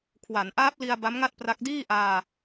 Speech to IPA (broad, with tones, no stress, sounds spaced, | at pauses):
kʰ w a˩˦ n ʔ aː˦˥ p̚ l i˧ a̯ b a˦˥ m ŋ a˥˩ t̚ p r a˦˥ k̚ d iː˥˩ ʔ aː˧